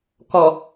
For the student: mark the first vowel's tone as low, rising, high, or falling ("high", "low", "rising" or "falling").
low